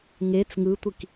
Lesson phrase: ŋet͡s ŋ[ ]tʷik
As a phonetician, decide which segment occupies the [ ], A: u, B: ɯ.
B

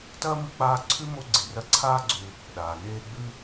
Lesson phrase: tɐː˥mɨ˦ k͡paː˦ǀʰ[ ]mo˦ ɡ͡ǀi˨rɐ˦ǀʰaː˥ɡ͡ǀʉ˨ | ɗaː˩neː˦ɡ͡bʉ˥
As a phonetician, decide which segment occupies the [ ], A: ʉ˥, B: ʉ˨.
A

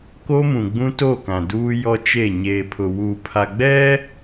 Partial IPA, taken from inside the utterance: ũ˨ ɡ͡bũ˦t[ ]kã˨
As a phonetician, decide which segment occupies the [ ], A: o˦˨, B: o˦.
A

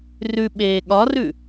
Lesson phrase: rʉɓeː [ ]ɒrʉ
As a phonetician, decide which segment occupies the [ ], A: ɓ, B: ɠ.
B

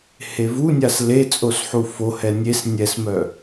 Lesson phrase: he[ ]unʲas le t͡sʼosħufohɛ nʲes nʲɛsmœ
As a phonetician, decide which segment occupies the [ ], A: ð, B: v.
B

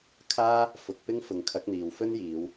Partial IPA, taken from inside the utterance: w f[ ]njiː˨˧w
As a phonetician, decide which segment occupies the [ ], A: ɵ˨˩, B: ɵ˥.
B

